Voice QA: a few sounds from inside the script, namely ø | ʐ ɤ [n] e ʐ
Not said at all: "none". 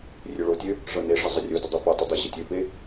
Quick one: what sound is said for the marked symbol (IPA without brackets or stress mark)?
n